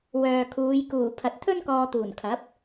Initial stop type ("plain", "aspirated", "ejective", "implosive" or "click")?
aspirated